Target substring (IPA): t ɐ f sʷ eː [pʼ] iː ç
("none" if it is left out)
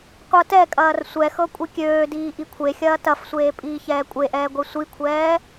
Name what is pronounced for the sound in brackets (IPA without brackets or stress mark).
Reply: pʼ